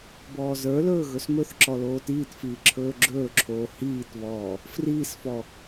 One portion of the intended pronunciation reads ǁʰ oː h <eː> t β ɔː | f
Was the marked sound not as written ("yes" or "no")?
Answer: yes